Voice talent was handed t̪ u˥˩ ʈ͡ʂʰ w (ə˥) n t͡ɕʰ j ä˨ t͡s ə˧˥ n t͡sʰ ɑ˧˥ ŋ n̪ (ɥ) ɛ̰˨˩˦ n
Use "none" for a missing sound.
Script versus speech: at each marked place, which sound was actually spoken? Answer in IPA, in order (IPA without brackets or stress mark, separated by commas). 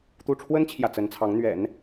ə˥, ɥ